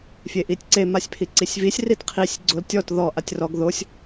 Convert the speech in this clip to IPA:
fʲ e ʔ i tʲ ǀ e m a sʲ pʰ i ǀ i sʲ v i sʲ r i t qʰ i sʲ ɡ͡ǀ o l tʲ ɔ t ð ɔ ʔ a tʲ r ɔ ɡ ð o sʲ

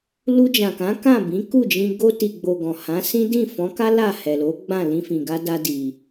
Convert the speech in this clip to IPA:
l u˧ d͡ʒ ã˨ k ã˨˦ k ã˦˨ b ĩ˨˦ k u˦˨ d͡ʒ ĩ˧ ɡ o˧ t i˨ ɡ͡b o˨ ɡ ɔ̃˨ h ã˨˦ s ĩ˦ d ĩ˦˨ f ɔ̃˨˦ k a˦ l a˦˨ h ɛ˨ l o˨˦ ɡ͡b ã˦˨ l ĩ˧ f ĩ˨ ɡ a˧ d a˧ d i˧

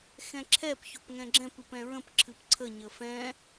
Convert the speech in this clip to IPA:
x ɛ̃ ǁʰ ɛ p ç o p ŋ ɛ̃ ɡ͡ǁ ɛ̃ p ɨ p ɛ̃ ɹ ə̃ p ǁʰ ɨ p ǀʰ ə ɲ ə f ɛ̃

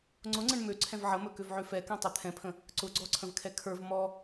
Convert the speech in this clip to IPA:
ŋ͡ǀ ʊ ŋ͡ǀ ə̃ ɳ m ø ǀʰ ɛ̃ v ʕ ə m ɵ k ø v ʕ ø f ɛ k ɛ̃ tˤ ɵ t̪ʰ ɛ̃ pʰ ə̃ | ǀ ʊ ɡ͡ǀ ɔ ǀʰ ə̃ v kʰ ɛ kʰ ə˞ v m ɔ

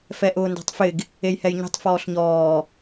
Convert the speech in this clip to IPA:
f ɛ ʔ ʊː n d ɛ̤ tˤ f ɪ ɡ | e j h ɛ j ɲ e̤ tˤ f ɔː ɬ ɲ ɔː

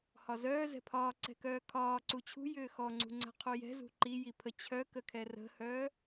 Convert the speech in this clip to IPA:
h ɒ z œː z ɛ̤ pʰ ɒː ǀ ɛ̤ k œː kʰ ɒː ǀ u t͡ɕʰ ṳ j ʏː x ɔ ŋ͡ǀ ṳ ŋ͡ǀ ɛ̤ qʰ u j ɛ̤ z ṳ ǃ i j i pʰ ə t͡ɕʰ œ k ə kʰ ɛ r ə̤ h œː

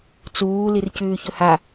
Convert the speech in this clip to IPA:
t͡s uː l i r c ʉː ç ɵ h a

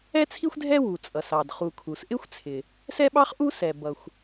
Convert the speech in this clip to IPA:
ɛ˥ t͡sʰ i˥ xʷ dʱ ɛ˥ w u˩ t͡sʼ ʌ˩ s ɑ˩ d χ u˩ kʰ u˩ s ʔ ɪ˥ xʷ t͡sʰ ɪ˩ | s ɛ˥ ɓ ɑ˥ χ ʔ u˥ s ɛ˩ b ʌ˩ xʷ

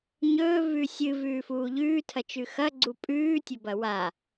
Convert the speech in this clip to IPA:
ɲ ɵː v ʉ sʲ ɨ v ʉː f uː ʎ ʉː tʰ ɐ t͡ʃ ʉ x ɐ ɡ͡ǀ u pʼ ʉː tʲ ɵ b ɐ w a

